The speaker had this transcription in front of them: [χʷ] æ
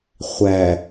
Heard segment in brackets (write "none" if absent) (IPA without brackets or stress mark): χʷ